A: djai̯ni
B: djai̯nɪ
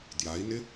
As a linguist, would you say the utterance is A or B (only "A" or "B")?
B